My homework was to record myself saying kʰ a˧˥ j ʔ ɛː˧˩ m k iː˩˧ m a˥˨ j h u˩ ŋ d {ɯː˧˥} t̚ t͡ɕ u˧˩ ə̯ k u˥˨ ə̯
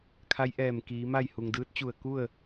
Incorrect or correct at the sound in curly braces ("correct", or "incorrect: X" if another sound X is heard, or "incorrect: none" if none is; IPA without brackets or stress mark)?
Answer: correct